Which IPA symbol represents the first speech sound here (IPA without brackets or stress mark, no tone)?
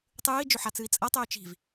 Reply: tˤ